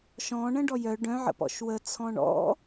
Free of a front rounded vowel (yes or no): no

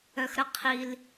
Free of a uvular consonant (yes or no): no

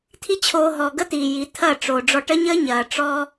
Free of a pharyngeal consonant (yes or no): yes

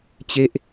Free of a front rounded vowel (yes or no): yes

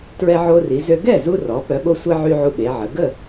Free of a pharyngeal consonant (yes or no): no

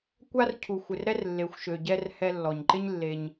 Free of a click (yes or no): no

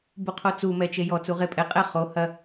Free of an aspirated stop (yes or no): no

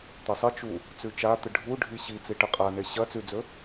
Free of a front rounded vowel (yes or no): yes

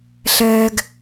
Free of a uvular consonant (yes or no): yes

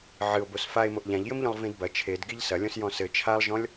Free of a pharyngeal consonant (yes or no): no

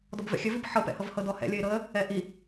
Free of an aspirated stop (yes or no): yes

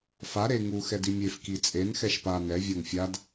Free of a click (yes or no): yes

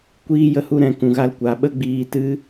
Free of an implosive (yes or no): no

